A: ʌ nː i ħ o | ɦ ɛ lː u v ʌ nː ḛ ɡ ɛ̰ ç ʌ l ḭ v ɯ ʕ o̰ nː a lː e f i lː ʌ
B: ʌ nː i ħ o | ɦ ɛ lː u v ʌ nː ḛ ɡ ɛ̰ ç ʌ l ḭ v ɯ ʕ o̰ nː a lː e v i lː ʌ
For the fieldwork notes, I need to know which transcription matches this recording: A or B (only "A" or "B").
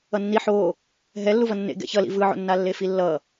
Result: A